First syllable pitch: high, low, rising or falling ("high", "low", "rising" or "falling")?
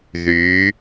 rising